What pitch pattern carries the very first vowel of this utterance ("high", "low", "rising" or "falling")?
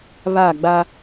falling